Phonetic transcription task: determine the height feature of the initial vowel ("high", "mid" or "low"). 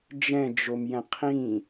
mid